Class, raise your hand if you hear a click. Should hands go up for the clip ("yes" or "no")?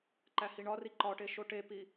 yes